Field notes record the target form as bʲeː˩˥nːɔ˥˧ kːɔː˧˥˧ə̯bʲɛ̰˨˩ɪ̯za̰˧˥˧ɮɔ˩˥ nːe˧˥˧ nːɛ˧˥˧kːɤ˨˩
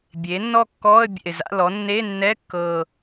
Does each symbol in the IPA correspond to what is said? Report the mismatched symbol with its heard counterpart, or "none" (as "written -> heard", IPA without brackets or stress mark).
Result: ɮ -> l